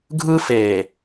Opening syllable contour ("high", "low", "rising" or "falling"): high